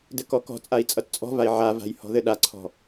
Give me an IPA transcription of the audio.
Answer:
d ɘ k ɔ k ɔ̤ t͡sʼ a i̯ t͡sʼ ʌ t t͡sʼ ɔ̤ v a i̯ ʕ a v a̤ j h ɔ̤ ð ɘ ɗ a ǀʰ ɔ̤

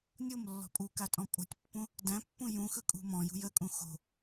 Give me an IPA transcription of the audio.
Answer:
nʲ o m lː ɔ̤ pʼ u k a tʼ ɔ̃ pʼ o̤ tʲ pː ũ | d æ̃ pː ũ j ũ x ɯ kʼ ṳ m ɔ̃ j ṳ j ə kʼ ũ x o̤

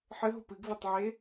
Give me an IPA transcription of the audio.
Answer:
ħ ɘ ɦ o p ɨ ɡ v e tˤ ʕ e

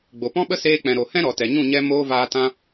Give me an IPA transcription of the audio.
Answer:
ɡ͡b o˨ p ɔ̃˦ ɓ ə˦ s eː˧ k͡p ɛ̃˨ ɾ o˨ h ɛ̃˦ ɾ ɔ˨ t ɛ˨ ɲ ũ˦˨ ɲ ɛ˦ m oː˧ v aː˧ t ã˦

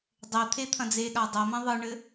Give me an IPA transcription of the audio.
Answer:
dˤ ɛ t̪ʰ e t̪ʰ ɐ̃ d͡z e ɠ a dˤ ɐ m ɐ̃ ðˤ ɯ ɳ ɘ

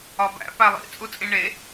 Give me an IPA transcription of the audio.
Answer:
ɒ b æ̰ p æ lˠ ḭ t͡sʼ u t͡sʼ ĩ ɳ e

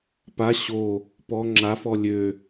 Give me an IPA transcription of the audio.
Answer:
p a ɕ o | p ɔ ŋ͡ǁ a f ɔ lʲ ø

